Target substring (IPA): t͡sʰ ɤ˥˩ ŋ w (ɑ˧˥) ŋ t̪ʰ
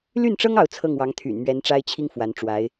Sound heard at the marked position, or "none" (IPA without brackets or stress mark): ɑ˧˥